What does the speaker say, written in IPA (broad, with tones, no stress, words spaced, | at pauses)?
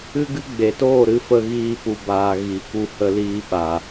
ɨ˦ɡɨ˦ ɡ͡be˨toː˦˨ɾɨ˧fə˧ ɣiː˦pu˧baː˧ ɣi˨˦ku˧ hə˧liː˧ ɓa˨